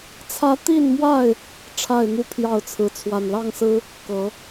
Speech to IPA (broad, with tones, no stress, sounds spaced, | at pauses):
t͡sʰ ä˦ t̪ i˥˨ n m w a˥˨ ɪ̯ | ʈ͡ʂʰ a˥˨ ɪ̯ n̪ u˥˨ pʰ j ɑ˥˨ ʊ̯ t͡sʰ ɹ̩˨˦ t͡sʰ w a˨˩ n l ɑ˥˨ ŋ s ɹ̩˦ | k ɤ˨˦